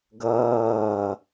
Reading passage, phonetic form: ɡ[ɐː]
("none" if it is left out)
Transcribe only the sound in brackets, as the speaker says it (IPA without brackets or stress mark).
ɐː